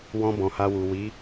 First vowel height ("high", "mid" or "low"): mid